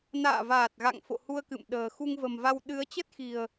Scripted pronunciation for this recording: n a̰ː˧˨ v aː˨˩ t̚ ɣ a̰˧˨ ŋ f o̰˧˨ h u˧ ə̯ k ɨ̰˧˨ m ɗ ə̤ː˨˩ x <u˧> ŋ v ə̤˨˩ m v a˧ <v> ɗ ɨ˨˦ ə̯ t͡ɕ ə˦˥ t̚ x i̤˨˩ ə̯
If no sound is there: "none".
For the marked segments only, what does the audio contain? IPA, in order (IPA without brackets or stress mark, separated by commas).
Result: u˧, w